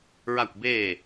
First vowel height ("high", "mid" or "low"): low